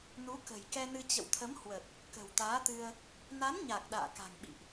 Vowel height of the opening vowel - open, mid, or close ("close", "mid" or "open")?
close